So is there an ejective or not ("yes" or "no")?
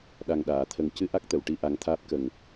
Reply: no